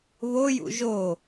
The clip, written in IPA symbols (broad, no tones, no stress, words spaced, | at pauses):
βojṵ ʒo